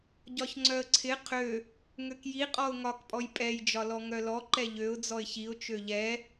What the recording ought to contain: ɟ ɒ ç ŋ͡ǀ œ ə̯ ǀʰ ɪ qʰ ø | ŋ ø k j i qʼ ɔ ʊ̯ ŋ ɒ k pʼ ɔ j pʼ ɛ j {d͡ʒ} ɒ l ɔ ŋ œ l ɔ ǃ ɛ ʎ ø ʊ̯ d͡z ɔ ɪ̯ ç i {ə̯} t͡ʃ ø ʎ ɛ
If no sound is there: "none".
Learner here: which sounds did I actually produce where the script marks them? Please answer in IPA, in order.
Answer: d͡ʒ, ʊ̯

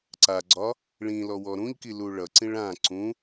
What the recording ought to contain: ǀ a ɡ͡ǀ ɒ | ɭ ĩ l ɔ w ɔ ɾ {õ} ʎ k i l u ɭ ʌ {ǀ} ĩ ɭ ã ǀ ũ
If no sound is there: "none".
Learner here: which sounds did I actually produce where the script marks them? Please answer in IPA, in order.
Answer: ũ, ǀ

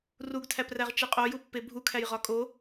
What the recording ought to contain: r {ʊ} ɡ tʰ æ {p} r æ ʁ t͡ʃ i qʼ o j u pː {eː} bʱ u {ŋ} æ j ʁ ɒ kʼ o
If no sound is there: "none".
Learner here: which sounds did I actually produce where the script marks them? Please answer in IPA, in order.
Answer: u, p, e, kʰ

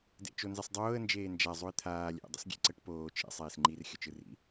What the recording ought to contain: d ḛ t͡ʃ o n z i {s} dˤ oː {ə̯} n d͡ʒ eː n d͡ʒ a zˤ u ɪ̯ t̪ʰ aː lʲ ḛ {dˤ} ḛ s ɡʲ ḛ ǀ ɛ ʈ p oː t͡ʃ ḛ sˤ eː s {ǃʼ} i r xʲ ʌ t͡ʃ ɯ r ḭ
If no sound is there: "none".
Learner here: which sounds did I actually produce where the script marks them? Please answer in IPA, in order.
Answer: sˤ, ə̯, dˤ, ŋ͡ǃ

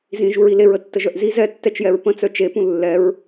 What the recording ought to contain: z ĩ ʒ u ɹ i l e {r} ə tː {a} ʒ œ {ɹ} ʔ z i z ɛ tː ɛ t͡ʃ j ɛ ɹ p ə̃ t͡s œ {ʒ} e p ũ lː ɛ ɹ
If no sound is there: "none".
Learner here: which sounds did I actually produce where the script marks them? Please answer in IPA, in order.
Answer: ɹ, ə, none, t͡ʃ

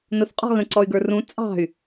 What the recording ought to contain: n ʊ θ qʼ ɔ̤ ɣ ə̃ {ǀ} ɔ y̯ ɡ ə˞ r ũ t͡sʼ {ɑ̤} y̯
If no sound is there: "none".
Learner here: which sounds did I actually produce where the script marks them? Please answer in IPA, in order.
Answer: ǀ, ɑ̤

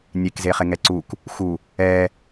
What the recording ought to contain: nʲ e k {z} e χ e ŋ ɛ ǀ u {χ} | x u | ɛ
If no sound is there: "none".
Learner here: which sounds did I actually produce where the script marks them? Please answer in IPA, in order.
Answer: z, k

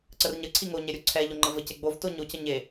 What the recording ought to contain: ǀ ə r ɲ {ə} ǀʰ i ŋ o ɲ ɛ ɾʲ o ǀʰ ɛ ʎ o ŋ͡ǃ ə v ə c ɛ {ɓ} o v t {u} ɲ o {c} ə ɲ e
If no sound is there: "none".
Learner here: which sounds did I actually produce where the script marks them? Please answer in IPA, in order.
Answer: ə, ɡ͡b, o, c

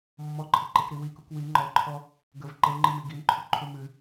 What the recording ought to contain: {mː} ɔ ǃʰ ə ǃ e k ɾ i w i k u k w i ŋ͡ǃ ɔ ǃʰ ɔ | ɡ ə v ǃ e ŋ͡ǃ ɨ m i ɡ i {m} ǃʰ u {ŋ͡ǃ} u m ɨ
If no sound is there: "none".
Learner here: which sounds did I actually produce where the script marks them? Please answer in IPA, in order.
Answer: mː, m, ǃʰ

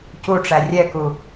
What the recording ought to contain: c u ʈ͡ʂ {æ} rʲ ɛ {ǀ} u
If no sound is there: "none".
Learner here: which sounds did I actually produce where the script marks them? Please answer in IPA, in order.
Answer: æ, k

